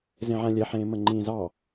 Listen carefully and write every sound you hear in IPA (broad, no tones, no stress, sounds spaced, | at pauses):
z ẽ ʕ ã lʲ ɛ ħ ẽː m ə ŋ͡ǃ ĩː z ɑ